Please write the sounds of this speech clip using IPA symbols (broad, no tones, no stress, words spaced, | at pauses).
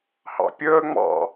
hɑ̰pʲəː ŋ͡mɑ̰